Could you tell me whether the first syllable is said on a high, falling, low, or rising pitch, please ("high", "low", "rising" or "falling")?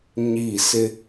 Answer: falling